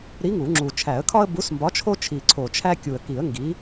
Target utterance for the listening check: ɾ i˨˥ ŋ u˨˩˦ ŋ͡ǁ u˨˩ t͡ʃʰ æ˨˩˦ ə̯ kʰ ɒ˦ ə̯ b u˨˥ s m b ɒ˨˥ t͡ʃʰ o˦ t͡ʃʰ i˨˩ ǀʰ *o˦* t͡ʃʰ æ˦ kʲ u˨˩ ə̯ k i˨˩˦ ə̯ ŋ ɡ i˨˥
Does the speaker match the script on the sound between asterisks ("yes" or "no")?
no